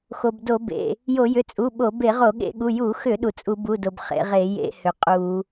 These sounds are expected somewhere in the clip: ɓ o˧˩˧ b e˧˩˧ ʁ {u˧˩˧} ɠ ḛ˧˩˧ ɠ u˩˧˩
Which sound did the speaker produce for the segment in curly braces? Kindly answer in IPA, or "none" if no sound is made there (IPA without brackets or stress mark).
o˧˩˧